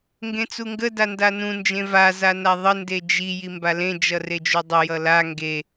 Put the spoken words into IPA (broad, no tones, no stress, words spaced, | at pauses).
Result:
ŋɡẽt͡suŋɡə dandanũ nd͡ʒẽva zanaðˤə nded͡ʒi jimbalẽ d͡ʒʌred͡ʒudˤə jʌla ŋɡe